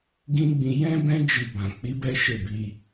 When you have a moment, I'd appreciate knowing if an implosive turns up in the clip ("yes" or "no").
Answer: no